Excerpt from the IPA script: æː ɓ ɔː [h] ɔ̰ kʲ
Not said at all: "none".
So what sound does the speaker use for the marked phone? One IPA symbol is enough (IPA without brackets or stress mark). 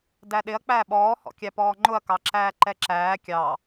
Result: h